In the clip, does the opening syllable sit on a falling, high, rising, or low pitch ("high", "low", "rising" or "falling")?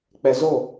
low